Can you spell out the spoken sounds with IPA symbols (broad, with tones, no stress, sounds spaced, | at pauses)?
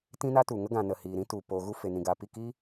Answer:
t ĩ˦ n a˦ t u˨ ŋ ə˦ ɡ ã˨ n ə˨ h iː˨ ɾ ĩ˦ t u˨ p o˨ ɣ u˧ f e˨ n ĩ˨ ɡ aː˨ p i˦˨ k iː˦